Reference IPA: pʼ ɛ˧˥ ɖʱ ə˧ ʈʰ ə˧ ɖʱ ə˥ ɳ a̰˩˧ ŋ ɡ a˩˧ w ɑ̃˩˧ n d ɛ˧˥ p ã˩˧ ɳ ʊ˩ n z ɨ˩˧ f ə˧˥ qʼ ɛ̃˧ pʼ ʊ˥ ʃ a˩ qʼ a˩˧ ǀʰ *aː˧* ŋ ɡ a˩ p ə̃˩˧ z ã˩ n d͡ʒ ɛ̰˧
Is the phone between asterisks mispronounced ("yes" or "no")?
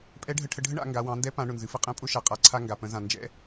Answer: yes